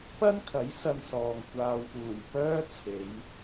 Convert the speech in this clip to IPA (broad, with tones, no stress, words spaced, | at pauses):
pɐ˥nkʰɐ˨˥j sɐ˧nsɔː˨ŋ kʷaː˨wpuː˨˩j pœː˥t͡sʰe˨˧j